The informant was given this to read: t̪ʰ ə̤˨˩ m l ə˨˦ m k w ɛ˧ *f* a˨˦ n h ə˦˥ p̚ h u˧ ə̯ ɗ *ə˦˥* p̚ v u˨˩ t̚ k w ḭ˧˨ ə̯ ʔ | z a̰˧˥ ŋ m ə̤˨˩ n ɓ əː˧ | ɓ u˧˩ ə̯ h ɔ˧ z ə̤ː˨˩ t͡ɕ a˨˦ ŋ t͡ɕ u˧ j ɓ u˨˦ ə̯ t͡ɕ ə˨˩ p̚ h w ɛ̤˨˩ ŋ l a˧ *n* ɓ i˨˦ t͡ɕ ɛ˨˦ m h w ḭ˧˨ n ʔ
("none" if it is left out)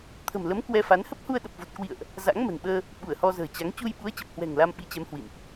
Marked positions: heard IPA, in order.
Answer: f, ə˨˩, m

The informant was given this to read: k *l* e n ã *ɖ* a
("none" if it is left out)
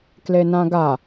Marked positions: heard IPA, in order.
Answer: l, ɡ

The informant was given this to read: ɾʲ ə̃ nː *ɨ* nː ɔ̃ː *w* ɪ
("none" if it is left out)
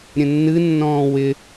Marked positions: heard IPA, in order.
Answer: ɨ, w

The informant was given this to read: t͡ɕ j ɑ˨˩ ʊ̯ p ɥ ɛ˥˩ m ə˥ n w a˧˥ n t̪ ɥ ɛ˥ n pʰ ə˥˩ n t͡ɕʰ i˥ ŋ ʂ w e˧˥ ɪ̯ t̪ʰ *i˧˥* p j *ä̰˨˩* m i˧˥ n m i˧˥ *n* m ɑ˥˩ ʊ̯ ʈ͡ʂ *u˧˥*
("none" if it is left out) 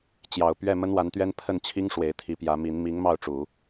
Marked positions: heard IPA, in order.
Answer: i˧˥, ä˧˥, ŋ, u˨˩˦

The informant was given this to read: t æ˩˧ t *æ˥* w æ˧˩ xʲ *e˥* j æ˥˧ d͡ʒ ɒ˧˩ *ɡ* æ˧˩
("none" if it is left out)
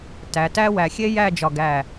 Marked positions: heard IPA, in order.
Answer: æ˥, e˥, ɡ

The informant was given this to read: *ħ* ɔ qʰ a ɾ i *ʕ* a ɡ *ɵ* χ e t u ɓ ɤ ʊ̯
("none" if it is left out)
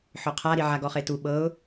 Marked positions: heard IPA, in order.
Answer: ħ, ʕ, ɔ

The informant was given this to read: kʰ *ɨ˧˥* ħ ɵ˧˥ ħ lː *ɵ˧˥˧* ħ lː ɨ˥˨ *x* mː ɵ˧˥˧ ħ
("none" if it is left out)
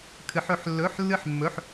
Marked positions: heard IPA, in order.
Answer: ɨ˧˥, ɵ˧˥˧, ħ

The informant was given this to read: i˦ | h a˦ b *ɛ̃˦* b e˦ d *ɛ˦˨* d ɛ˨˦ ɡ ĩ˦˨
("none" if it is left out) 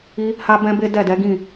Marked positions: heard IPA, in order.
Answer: ɛ̃˦, ɛ˦˨

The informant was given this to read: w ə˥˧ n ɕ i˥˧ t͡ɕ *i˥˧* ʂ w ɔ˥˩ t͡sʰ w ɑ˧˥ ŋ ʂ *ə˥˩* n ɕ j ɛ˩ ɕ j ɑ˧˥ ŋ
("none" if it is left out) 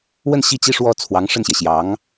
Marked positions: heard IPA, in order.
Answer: i˥˧, ə˥˩

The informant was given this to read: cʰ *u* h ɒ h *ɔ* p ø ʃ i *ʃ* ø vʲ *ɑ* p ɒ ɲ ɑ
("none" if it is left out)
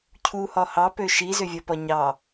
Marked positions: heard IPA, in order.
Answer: u, ɑ, z, ɒ

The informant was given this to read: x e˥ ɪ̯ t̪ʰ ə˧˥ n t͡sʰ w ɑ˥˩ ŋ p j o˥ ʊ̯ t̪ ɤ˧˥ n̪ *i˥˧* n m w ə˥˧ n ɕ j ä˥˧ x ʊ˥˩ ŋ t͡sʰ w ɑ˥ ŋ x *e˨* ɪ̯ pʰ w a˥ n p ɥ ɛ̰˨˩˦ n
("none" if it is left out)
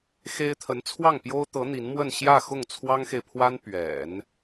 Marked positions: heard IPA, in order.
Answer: i˧˥, e˨

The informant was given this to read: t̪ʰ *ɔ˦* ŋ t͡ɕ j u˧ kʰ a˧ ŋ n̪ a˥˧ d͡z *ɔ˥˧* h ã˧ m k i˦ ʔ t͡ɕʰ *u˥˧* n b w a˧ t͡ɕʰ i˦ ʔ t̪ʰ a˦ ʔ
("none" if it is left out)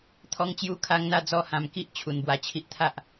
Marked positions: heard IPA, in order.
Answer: ɔ˧, ɔ˥˧, u˧

